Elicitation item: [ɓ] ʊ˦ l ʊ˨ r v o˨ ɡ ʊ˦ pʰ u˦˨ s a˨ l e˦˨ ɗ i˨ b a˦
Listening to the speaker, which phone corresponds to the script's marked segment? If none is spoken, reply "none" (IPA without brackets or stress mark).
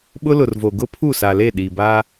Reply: ɓ